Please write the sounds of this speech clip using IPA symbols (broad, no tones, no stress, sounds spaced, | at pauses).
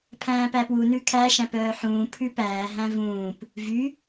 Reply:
pʰ æ̃ː p æ p w u n ʉ kʰ æ ʃ æ̃ p œː ħ ũː pʰ ʉ p æː ɦ æ̃ v ũː p | v y